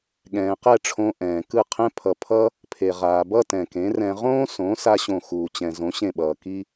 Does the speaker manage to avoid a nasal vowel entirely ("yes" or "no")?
no